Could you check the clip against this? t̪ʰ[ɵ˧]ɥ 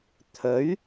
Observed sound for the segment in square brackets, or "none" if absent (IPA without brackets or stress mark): ɵ˨˥